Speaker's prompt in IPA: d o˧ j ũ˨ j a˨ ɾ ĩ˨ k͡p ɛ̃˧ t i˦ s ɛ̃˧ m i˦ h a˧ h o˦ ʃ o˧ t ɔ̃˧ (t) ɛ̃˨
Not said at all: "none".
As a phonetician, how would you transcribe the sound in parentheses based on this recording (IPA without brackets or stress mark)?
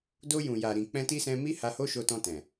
t